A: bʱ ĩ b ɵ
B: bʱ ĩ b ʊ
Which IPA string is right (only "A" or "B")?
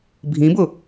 B